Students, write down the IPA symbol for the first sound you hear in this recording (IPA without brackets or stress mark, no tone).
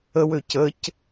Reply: ə